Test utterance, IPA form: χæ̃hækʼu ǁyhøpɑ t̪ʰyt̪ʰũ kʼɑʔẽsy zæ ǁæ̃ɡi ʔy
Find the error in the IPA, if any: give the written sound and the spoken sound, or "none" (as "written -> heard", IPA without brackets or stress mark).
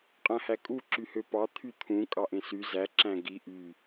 χ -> qʼ